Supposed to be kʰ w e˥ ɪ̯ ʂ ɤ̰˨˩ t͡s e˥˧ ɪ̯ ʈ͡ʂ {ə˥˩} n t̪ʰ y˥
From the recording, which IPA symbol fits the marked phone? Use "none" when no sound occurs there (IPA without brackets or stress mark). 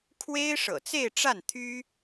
a˥˩